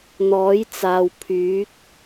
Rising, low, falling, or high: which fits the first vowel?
rising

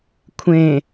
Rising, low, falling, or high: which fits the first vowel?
low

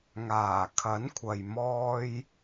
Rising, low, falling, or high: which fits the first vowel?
low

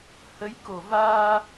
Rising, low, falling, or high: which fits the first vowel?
rising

